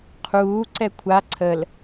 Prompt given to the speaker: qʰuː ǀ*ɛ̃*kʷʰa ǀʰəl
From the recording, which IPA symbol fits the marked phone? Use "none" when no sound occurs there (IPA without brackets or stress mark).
ɛ